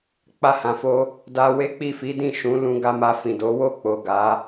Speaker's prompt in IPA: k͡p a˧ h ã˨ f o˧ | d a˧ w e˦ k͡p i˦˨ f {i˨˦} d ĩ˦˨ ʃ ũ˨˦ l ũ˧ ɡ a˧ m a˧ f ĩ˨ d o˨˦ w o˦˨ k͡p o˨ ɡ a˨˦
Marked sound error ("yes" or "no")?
no